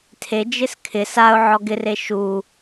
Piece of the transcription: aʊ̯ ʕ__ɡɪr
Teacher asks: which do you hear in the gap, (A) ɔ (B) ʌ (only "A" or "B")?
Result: A